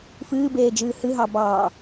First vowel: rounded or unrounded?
unrounded